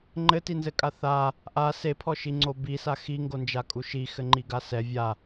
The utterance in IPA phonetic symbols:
ŋ͡ǃ ɘ t i n z ɘ kʼ a θ a | ʔ a s e pʰ ɔ ʃ i ŋ͡ǀ o b i s a x i ŋ ɡ o n d͡ʒ a kʼ u ʃ i x ɘ ŋ͡ǃ i ɡ a s ɛ vʲ a

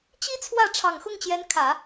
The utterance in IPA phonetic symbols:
t͡ɕ i˥ t͡sʰ w ä˥˩ ʈ͡ʂʰ ɑ˨˩ ŋ x ʊ˥˩ ŋ t͡ɕ j ɛ˧˥ n kʰ ä˨˩˦

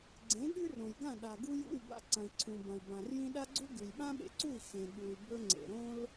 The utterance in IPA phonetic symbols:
ɡ͡ǀ ẽ˩˥ ɠ ʉ˥ r õ˩ j ɡ ã˥˩ ɗ a˩ ɡ u˧ j ṵ˥˩ y̯ b a̰˧ ǀ ɐ̃˩ i̯ ǀʰ ũ˩ b ɐ̃˩ y̯ b ã˩ r j ĩ˧ ɗ a˥ ɡ͡ǀ u˥ ɡ ʉ˩ j ɓ ã˥ ɓ ḛ˧ ǀ u˥˩ i̯ x ẽ˩ ɠ u˩ y̯ b ɵ˧ ŋ͡ǀ ḛ˩ ɾ õ˥ l

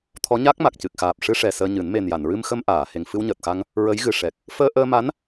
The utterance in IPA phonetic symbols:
t̪ʰ ɔ˧˥ ɲ a˦˥ k̚ m a˨˩ k̚ c ɨ˨˩ k̚ x aː˨˩ p̚ ʂ ɨ˧ ʂ ɛ˨˩ s əː˧ ɲ ɨ˨˩˦ n m e˨˩ n j a˨˩˨ n ɹ ɨ˧ m x ə˧ m ʔ aː˨˩˨ h e˨˩ ŋ f ɨ˧ w ɲ əː˨˩ t̚ x a˧ ŋ | ɹ ə˧˥ j ɣ ɨ˨˩ ʂ ɛ˨˩ k̚ | f əː˧ ʔ əː˧ m a˧˥ n

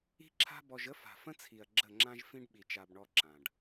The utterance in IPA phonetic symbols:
i̤˦ ǁʰ a̤˦ b ɔ˧ ʒ ə˦ f a̤˨ f ə̃˦ t͡sʰ i˨ ɐ̯ ɡ͡ǁ ə˦˨ ŋ͡ǁ ã˦ ʒ f ĩ˦ ɖ ɓ i˧ t͡ʃ a˧ b ɳ ɔ˦ ǁ ã˨ ɖ

